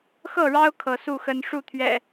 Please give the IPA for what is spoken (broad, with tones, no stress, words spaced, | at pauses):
xɤ˥˨ɻɑ˦ʊ̯ kʰɤ˨˦su˥˨xə˦n ʂu˥˨t̪ʰɥɛ̰˨˩